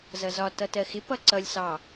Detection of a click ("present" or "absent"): present